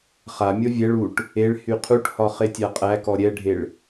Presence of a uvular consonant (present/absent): present